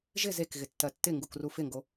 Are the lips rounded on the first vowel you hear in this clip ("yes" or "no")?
no